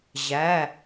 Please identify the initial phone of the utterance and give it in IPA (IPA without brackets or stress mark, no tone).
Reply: ʑ